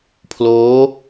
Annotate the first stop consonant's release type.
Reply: aspirated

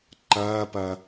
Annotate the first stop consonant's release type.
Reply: click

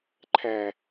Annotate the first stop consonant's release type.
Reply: click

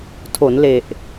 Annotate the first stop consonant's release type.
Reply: aspirated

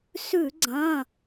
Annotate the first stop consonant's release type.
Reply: click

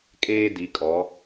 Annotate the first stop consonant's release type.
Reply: ejective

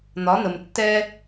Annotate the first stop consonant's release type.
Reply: plain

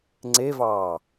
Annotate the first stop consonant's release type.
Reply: click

